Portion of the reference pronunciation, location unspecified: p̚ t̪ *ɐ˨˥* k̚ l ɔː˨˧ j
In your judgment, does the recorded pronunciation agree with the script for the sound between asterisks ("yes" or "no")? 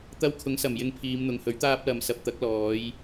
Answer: yes